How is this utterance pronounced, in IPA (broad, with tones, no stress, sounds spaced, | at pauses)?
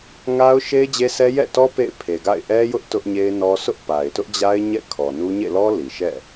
ŋ a˦ ʊ̯ ʃ e˦ ɪ̯ d͡ʑ e˦ s ɛ˦ j ɛ̰˦˨ t ɔ˦ p ḛ˦˨ ɪ̯ pʰ e˨ ɡ a̰˦˨ ɪ̯ ʔ ɛ˦ j ʊ˦ ʔ t ʊ˦ ʔ ɲ e˦ ɪ̯ n ɔ˦ s ʊ˦ ʔ p a˨ ɪ̯ t ʊ˦ ʔ d͡ʑ a˦ ɪ̯ ɲ ɛ̰˦˨ kʰ ɔ˨ n u˦ ɲ ḛ˦˨ l ɔ˦ l i˨ ʃ ɛ̰˦˨